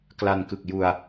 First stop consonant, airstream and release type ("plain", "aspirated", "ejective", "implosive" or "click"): plain